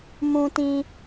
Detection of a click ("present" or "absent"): absent